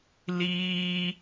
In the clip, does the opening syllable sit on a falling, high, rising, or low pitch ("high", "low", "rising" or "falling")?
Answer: high